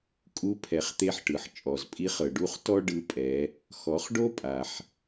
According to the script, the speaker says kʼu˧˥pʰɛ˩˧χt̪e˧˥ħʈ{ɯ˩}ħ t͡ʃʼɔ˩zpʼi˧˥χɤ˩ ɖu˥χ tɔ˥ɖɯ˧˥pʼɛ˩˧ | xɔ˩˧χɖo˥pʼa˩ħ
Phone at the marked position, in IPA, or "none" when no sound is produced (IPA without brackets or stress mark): ɯ˩